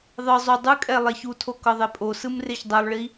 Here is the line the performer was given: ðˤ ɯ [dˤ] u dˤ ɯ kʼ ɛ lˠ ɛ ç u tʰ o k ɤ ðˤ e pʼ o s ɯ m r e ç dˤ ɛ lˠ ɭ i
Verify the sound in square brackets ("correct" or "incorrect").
incorrect